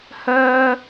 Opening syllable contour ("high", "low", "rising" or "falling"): high